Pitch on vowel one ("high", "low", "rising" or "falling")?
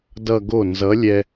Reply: falling